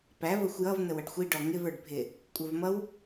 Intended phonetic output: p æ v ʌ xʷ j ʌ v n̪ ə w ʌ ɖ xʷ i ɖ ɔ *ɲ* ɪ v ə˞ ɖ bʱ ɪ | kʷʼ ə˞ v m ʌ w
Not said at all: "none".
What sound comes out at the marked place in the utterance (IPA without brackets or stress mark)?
ŋ